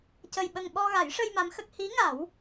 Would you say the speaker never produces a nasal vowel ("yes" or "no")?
yes